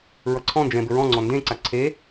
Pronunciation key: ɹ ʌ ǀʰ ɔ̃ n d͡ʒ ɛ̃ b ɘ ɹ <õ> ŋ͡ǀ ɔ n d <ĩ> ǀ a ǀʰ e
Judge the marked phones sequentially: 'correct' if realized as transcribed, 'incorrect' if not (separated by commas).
incorrect, incorrect